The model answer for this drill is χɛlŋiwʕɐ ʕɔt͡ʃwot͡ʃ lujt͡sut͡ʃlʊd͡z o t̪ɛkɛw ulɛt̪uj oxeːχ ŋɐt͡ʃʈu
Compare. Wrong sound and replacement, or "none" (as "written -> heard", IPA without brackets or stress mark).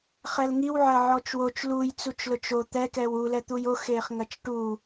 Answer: d͡z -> t͡ʃ